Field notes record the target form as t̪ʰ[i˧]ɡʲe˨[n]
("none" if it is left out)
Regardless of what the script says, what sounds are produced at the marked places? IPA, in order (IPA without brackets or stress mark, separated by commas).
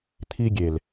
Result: i˧, l